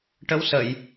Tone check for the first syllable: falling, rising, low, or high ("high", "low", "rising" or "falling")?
rising